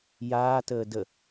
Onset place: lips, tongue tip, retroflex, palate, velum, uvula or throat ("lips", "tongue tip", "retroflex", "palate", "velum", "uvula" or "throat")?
palate